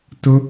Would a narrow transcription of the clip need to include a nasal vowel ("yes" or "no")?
no